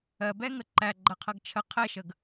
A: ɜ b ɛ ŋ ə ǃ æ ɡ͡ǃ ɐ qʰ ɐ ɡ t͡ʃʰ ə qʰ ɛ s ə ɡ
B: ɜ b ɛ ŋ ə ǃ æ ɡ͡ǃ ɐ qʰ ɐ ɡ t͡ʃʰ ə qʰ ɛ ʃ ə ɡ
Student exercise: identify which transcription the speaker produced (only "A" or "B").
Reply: B